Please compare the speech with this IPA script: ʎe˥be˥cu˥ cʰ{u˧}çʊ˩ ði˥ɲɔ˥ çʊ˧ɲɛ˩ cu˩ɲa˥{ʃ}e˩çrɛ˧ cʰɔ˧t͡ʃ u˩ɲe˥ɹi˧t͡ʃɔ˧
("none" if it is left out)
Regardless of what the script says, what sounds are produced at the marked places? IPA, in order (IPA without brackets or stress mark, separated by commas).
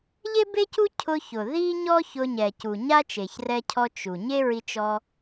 ʊ˧, t͡ʃ